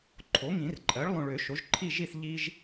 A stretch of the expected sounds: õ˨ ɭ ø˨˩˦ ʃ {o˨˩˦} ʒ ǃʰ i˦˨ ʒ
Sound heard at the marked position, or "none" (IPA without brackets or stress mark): o˩˥